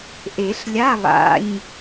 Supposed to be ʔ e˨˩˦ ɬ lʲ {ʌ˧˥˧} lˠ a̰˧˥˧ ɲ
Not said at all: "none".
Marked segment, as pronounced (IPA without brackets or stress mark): a˧˥˧